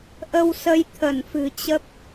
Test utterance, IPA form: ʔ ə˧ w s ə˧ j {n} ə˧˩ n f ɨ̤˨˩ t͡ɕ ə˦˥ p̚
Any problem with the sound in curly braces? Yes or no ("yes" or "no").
yes